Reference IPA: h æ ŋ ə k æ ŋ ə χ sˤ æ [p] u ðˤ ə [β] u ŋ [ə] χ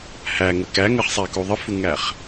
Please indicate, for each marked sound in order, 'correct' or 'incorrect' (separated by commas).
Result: incorrect, incorrect, incorrect